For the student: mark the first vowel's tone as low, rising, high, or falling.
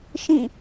falling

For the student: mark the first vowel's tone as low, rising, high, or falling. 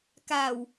low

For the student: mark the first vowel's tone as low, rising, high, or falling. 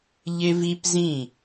high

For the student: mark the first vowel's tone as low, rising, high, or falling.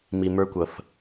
low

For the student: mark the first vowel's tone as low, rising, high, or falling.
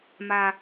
high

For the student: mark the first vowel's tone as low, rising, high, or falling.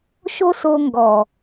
high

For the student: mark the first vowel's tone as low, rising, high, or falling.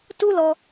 high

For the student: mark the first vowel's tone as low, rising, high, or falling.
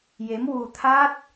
rising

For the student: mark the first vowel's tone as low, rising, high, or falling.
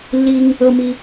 high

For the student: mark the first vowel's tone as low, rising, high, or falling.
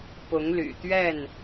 rising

